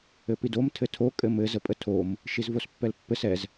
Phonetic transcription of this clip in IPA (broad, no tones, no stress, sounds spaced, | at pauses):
ɘ p i d o m tʰ ɘ tʰ o kʼ ɘ m ɘ z ə pʼ ə tʰ o m | ʃ i z v o s pː ɛ l pː ɘ s ɛ z